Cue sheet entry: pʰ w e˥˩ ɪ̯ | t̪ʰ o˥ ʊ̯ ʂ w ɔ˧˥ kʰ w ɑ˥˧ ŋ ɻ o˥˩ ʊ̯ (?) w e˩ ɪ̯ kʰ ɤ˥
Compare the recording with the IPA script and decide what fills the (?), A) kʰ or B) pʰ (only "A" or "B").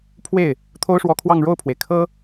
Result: B